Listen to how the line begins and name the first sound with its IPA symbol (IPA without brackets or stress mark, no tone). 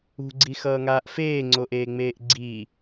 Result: ṳ